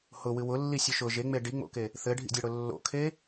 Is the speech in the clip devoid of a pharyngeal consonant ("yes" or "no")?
yes